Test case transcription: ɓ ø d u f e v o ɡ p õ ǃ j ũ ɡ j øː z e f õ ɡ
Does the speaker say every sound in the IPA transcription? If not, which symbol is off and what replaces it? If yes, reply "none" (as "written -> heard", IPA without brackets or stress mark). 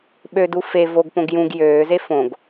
ǃ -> ɡ